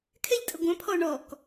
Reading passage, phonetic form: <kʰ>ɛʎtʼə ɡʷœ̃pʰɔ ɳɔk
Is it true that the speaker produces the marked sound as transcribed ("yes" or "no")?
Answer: yes